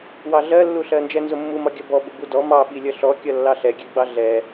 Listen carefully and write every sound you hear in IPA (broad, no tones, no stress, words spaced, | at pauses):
wɑɮɜlːuɬɜ nd͡ʒɛnzʊmːumɒ ɡʲʌbɔ bʊbudɔ mɑɓi lʲʌɬɔkʲʌ lːɑɬɛɡʲɛɡ͡bɑ ɮɛ